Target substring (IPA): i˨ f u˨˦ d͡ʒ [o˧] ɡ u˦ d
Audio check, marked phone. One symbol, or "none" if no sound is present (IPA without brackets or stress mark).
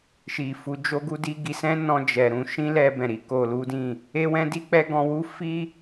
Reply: o˦